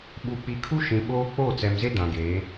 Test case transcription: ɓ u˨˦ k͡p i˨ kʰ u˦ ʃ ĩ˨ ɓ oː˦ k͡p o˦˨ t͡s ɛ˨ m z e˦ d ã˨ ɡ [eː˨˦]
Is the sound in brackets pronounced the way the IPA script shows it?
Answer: yes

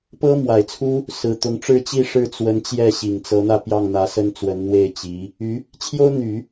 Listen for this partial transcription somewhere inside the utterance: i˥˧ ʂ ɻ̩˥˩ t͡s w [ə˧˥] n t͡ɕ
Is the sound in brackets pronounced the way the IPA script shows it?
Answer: yes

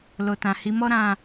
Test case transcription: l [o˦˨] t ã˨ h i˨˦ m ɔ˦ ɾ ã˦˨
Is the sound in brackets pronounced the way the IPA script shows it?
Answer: no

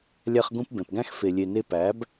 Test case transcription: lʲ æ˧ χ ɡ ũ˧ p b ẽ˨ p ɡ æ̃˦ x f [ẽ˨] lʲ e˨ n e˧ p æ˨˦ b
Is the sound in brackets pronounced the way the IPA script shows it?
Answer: no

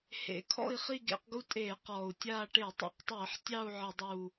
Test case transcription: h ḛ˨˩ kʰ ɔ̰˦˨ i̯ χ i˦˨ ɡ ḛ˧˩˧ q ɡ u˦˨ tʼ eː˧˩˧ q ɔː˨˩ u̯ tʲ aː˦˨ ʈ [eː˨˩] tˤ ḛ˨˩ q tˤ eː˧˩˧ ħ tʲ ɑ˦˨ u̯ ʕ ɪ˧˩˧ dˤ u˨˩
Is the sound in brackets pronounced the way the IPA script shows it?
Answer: no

